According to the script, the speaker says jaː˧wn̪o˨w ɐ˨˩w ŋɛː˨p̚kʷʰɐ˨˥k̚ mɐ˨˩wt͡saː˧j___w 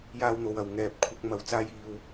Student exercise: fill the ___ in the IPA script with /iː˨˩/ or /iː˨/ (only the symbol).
iː˨